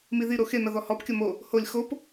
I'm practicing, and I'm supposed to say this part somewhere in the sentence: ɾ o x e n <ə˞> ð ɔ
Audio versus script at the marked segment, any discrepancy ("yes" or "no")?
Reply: yes